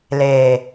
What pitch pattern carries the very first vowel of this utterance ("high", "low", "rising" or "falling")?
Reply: low